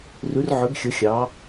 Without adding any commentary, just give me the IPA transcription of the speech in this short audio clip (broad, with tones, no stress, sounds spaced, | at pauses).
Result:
r ʉ˨˦ r ʕ ʏ˨˦ ɡ xʲ ə˨˦ xʲ ɑ˨˦